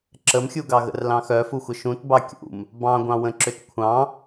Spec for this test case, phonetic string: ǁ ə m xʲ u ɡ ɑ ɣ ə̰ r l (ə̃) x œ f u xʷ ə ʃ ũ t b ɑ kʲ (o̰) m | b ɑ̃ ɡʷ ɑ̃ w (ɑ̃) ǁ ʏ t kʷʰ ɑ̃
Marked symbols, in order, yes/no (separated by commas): no, no, no